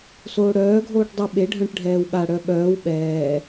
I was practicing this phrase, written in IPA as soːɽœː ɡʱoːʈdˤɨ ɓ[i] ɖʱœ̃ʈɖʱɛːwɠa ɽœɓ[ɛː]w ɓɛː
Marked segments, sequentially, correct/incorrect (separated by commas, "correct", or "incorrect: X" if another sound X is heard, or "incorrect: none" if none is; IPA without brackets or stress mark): incorrect: e, incorrect: œː